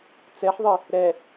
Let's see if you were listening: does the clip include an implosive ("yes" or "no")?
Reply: no